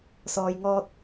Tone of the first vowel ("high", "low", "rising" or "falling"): low